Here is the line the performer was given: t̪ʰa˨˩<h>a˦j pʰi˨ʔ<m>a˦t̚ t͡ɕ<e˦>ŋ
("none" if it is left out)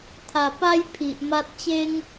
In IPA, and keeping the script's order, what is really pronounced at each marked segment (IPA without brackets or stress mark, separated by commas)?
p, m, e˦